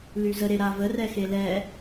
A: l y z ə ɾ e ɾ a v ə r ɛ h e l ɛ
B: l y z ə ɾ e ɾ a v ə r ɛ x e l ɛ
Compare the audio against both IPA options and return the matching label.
B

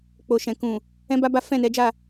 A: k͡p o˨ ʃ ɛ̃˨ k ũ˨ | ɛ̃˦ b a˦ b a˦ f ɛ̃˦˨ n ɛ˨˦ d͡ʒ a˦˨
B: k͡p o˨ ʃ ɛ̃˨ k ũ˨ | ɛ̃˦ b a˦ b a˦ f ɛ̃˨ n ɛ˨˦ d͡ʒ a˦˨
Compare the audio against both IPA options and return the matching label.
A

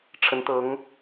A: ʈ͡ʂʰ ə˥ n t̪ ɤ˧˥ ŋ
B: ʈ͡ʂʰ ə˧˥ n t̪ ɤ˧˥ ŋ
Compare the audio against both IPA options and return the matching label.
B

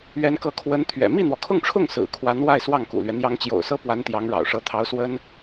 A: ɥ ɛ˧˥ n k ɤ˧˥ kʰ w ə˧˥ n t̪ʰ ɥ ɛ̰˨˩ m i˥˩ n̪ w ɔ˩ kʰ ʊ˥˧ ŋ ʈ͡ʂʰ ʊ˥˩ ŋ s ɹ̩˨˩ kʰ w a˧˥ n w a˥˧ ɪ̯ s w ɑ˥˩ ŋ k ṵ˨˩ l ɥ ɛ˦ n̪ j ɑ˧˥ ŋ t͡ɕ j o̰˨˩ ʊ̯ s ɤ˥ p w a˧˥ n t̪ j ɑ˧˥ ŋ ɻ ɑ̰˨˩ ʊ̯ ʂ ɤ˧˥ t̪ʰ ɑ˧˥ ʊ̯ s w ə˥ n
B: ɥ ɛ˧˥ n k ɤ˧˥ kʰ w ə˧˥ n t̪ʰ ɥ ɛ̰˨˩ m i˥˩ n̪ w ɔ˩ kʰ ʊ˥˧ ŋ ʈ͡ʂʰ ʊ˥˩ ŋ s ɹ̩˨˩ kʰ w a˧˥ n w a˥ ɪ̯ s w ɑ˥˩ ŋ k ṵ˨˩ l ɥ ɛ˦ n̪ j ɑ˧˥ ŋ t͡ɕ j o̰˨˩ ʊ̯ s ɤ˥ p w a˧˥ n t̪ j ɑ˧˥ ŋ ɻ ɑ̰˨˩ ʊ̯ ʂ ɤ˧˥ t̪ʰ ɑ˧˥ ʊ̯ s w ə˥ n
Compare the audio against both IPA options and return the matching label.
A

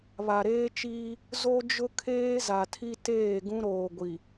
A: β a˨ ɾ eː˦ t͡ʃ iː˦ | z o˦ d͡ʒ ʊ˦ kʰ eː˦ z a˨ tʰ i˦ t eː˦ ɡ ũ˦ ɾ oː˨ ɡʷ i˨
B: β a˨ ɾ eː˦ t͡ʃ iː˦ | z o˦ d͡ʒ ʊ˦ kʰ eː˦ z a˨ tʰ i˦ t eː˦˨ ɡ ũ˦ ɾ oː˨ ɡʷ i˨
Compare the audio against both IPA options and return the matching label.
B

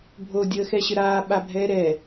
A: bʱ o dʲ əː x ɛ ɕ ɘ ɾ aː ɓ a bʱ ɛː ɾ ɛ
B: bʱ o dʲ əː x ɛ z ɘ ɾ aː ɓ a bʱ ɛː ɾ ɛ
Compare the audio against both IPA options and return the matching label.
A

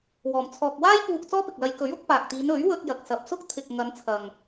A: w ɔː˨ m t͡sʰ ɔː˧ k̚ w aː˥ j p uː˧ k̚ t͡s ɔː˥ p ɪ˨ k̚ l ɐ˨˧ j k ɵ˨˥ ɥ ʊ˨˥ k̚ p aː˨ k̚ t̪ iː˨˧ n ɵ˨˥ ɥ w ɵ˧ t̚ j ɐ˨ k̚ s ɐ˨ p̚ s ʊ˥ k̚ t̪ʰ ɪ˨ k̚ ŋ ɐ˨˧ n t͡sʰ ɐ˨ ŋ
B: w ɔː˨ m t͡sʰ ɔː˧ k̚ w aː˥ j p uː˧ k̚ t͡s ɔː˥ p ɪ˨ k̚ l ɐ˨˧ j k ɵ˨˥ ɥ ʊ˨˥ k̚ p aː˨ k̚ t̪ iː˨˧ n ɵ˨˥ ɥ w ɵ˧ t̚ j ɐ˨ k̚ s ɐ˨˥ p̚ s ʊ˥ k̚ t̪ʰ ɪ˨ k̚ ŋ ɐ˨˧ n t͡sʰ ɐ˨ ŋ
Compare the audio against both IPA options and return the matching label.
A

